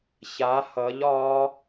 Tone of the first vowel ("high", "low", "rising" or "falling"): rising